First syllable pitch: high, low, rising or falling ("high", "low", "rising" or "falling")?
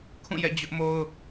falling